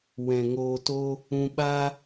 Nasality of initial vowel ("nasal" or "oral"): nasal